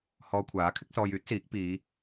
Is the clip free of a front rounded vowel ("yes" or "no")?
no